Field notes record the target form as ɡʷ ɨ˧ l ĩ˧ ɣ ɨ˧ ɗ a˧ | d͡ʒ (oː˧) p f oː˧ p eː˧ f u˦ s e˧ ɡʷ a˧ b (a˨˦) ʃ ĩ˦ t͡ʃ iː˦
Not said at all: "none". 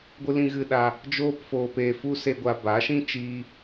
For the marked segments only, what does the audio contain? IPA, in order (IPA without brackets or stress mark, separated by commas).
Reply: oː˧, a˨˦